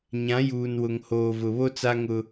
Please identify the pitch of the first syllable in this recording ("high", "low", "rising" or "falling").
rising